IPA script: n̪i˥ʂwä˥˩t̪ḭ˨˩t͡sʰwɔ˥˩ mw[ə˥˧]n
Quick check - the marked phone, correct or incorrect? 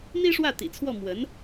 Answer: incorrect: ə˧˥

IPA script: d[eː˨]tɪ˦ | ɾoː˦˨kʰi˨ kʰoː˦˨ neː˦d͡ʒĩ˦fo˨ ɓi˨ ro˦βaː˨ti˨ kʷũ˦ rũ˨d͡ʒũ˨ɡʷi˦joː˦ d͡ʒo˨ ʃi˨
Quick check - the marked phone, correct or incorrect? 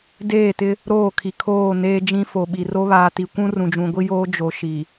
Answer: incorrect: eː˦˨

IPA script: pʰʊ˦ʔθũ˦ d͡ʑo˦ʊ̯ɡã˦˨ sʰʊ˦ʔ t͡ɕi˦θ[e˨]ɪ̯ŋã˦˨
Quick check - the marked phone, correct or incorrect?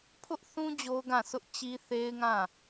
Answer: incorrect: e˦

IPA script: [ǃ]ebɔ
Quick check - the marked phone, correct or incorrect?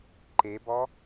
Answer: correct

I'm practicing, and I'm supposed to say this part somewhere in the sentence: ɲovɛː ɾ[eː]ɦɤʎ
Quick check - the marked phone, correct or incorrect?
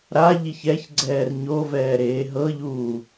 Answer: correct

